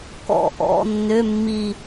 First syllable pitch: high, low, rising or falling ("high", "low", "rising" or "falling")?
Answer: falling